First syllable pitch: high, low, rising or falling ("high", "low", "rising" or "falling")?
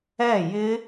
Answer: falling